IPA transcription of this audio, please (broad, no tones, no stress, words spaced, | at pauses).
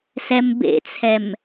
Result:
sɛmbḛt͡sʰɛm